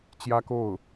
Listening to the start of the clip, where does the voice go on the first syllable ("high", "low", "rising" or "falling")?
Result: high